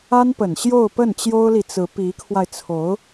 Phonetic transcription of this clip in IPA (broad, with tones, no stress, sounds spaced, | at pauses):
a˥ n p ə˨˩ n ɕ j o˥˧ ʊ̯ p ə˥˩ n t͡ɕ j o˥ ʊ̯ l i˨ t͡s ɹ̩˧˥ p i˧˥ kʰ w a˧ ɪ̯ t͡sʰ o˧˥ ʊ̯